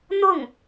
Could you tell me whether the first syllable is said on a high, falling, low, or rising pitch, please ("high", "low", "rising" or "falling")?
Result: falling